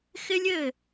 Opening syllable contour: high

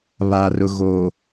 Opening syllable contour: low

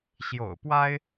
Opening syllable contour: low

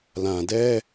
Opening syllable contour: low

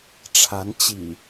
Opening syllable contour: rising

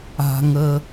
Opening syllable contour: low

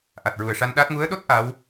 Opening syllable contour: low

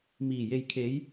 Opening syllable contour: low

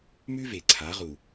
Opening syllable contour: high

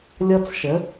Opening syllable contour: high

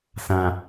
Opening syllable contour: low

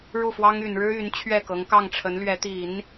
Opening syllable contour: falling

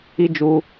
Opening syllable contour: high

